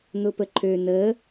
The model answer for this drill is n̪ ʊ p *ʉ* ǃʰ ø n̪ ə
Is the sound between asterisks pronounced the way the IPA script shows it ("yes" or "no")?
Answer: no